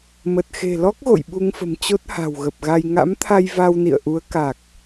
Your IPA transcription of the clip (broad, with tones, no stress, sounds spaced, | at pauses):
m ə˨˩ t̚ x e̤˨˩ l ɔ˦˥ k̚ ɣ o̰˧˨ j ɓ u˧ ŋ f ə̤˨˩ m t͡ɕ o˦˥ t̚ h a̤˨˩ w ɣ ə˨˩ p̚ ɣ a˧ j ŋ a̰˧˥ m t̪ʰ a˧ j v a˧ w n ḭ˧˨ ə̯ ʔ u˨˦ ə̯ k a˨˩ k̚